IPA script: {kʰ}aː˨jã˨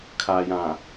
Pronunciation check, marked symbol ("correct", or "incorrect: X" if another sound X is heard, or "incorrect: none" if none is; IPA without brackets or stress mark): correct